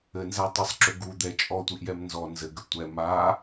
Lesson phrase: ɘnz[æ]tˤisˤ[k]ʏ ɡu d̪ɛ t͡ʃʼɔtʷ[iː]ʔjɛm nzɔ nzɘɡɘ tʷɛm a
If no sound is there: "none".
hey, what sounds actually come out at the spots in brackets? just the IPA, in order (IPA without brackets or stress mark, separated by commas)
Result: æ, ǁ, i